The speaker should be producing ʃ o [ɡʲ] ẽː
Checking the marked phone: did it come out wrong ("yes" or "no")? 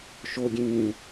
no